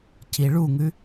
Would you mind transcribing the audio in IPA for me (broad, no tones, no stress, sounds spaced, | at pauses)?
c i ɭ u ŋ ʉ